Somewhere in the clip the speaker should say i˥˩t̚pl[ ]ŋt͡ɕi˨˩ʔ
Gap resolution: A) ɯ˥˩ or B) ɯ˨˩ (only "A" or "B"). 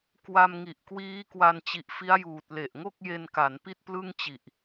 A